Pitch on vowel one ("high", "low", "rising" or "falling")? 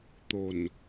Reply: low